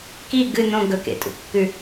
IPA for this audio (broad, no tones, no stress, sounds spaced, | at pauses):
k i ɡ ɨ n õ ɡ ɵ k ḛ tʼ ṵ kː ʉ